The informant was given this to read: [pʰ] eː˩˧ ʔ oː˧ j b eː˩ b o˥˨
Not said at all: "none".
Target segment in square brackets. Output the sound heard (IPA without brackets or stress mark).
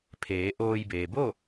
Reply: pʰ